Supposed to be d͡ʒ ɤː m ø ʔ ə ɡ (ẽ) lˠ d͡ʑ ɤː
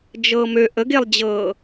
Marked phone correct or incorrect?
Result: incorrect